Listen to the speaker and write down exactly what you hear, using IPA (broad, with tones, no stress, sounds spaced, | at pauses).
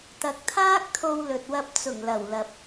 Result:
t̪ ɐ˨ k̚ t̪ʰ aː˥ k̚ t̪ʰ o˧ w l ɵ˨ t̚ w ɐ˧ p̚ t͡s ʊ˨˩ ŋ l ɐ˨˩ w l ɐ˨ p̚